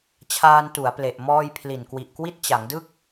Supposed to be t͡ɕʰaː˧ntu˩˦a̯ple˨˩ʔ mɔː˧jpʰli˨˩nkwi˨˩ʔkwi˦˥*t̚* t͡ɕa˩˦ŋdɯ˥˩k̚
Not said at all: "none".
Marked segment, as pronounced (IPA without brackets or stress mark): t̚